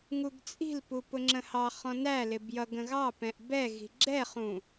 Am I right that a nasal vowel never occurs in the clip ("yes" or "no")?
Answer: no